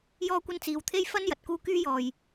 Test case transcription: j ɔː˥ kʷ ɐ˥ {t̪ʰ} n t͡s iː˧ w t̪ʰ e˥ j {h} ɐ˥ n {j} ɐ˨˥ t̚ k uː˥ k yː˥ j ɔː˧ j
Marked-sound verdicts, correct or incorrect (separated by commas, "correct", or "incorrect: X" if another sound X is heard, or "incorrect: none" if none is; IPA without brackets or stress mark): incorrect: none, incorrect: f, correct